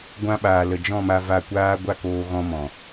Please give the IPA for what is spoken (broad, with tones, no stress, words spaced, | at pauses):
ɡʷã˧ɓaː˨ lə˨d͡ʒɔ̃˦˨ma˧ va˧kʷaː˦ ɡʷa˦koː˧ ɣɔ̃˧mɔ̃˨